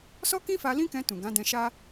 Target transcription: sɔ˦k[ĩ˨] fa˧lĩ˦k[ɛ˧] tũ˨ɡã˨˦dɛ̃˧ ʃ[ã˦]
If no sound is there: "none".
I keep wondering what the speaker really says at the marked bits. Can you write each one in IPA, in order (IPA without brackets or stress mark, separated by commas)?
ĩ˦, ɛ̃˧, a˦